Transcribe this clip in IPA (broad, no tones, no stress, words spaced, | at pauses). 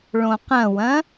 ɭõqɐ̃wɐ̃